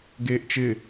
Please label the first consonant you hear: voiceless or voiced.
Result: voiced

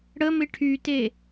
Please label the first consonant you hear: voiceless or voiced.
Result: voiced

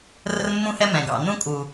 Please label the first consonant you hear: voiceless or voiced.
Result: voiced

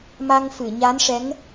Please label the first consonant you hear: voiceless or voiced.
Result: voiced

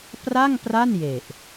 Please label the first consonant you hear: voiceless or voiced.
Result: voiceless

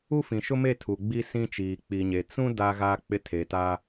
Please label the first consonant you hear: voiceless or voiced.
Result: voiceless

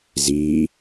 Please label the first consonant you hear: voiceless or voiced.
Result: voiced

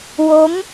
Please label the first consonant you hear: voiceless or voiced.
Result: voiced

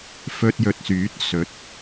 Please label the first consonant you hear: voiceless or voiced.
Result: voiceless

